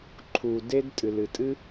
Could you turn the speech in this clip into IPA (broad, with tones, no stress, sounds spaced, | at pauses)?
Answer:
ǃʰ u˩ d e˥ d tʼ ɨ˩ l ɨ˩ tʼ ɨ˥